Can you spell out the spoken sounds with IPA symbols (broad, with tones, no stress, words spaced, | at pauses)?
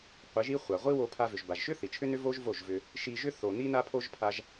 qʷi˨˦ʒi˦ χʷa˨ʁʷi˦ wo˧pʰa˧ vʏ˨ʒba˨ʒʃʏ˦ θi˨t͡ʃʰʏ˦nʏ˦ vo˦ʒvo˦˨ʒvʏ˧ | ʃi˧ʒʏ˦ θo˨ ni˧na˧pʰo˧ʒ pʰa˧ʒ